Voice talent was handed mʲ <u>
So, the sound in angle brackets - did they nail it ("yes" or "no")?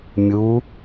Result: yes